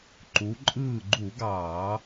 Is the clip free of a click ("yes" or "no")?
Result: no